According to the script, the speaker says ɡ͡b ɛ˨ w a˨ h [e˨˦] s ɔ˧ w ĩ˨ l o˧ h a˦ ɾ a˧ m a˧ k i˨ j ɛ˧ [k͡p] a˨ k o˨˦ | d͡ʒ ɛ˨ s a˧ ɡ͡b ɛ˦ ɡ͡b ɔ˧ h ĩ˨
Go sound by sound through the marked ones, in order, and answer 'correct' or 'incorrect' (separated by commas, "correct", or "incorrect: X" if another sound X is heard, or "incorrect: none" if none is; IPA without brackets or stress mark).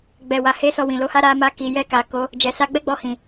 correct, incorrect: k